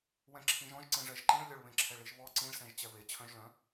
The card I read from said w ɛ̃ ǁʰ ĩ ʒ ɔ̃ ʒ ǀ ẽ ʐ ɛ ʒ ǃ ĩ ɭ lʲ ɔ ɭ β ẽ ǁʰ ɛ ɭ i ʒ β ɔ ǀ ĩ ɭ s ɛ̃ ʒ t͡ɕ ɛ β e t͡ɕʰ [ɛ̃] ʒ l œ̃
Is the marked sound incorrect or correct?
incorrect